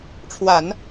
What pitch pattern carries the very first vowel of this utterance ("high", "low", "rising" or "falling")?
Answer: low